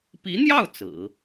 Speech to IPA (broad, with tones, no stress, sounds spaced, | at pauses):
p i˧˥ n̪ j ɑ˥˩ ʊ̯ t͡s ɹ̩˨˩˦